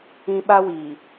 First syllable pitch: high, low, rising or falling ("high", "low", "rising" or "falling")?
high